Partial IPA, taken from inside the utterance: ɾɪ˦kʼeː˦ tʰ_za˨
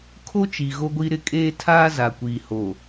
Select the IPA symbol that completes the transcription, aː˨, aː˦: aː˦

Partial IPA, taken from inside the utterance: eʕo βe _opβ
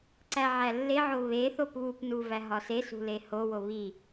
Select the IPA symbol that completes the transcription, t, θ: θ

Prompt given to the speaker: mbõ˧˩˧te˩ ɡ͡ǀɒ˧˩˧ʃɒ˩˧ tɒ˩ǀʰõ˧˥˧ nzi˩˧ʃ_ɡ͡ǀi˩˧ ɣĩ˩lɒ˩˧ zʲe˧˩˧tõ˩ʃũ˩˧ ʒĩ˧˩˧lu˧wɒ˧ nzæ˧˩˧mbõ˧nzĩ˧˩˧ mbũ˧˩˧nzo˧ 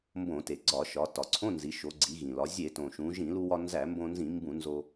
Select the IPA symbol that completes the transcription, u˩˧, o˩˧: o˩˧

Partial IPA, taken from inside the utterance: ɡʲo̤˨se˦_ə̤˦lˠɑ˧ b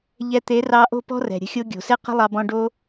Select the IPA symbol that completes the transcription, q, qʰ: q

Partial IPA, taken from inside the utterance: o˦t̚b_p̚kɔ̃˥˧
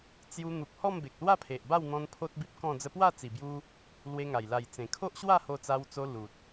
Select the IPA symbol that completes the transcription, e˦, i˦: i˦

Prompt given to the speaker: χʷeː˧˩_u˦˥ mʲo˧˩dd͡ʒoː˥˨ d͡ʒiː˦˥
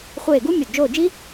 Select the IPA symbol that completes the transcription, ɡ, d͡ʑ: ɡ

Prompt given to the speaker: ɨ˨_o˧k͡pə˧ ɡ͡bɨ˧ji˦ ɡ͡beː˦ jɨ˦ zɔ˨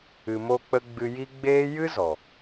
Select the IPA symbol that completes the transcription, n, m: m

